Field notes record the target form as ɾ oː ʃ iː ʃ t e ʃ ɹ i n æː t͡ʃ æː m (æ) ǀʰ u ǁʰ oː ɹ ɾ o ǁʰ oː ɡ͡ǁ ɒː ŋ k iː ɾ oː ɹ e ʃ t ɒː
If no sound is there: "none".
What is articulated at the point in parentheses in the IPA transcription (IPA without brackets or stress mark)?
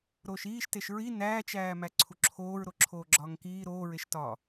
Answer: æ